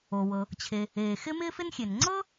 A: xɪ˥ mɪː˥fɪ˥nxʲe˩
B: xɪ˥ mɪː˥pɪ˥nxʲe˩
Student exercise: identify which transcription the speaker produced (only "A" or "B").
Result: A